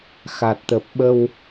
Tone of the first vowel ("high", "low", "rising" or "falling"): low